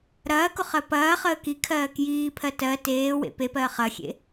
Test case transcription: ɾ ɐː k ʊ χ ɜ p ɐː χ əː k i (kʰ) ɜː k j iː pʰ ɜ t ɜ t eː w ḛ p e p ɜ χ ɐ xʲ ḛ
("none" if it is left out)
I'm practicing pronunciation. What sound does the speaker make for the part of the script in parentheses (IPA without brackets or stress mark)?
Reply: kʰ